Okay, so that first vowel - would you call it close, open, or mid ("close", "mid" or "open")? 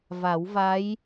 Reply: open